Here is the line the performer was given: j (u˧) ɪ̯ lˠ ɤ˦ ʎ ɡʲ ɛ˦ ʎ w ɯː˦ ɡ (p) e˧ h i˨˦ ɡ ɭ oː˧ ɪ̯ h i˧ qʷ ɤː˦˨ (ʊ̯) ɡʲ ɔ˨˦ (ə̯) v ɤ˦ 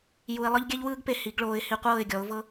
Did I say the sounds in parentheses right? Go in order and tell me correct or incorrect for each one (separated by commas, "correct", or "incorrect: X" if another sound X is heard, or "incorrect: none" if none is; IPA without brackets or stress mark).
correct, correct, incorrect: ɪ̯, incorrect: ʊ̯